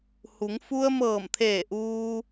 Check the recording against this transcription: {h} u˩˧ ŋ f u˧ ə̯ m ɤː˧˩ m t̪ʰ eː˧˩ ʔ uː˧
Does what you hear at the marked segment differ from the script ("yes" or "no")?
no